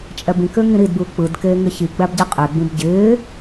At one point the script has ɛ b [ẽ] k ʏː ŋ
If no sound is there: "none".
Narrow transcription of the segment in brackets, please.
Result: ĩ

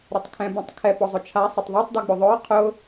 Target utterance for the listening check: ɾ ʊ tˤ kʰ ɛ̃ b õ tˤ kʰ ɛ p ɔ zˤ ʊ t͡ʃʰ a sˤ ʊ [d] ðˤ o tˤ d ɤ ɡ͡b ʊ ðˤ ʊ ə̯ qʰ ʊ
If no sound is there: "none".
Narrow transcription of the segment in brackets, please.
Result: tˤ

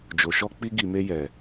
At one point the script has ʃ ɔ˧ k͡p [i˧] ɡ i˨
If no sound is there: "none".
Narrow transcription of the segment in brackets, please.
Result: i˧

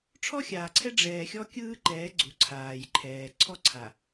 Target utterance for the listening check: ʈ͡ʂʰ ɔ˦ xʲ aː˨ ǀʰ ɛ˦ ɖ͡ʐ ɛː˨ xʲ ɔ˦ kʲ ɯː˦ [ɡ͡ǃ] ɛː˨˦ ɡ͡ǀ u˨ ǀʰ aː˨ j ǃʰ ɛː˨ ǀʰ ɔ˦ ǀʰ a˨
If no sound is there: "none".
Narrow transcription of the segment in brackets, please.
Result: ǃ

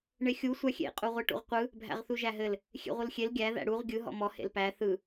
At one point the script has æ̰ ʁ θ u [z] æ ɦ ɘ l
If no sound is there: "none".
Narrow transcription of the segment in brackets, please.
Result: ʒ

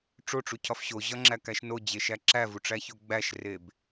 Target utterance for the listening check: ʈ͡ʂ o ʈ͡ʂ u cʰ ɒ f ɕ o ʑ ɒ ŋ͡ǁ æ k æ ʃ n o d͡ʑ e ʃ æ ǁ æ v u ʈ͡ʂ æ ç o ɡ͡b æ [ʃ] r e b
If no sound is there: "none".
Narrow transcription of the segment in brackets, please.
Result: ʃ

